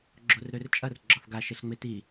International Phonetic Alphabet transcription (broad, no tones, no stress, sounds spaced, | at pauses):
ɡ͡ǁ o r ɾ ø r t͡ʃʼ ɐ r ɡ͡ǁ ɒ θ ɡ a ʃ e ɬ ŋ͡m e t i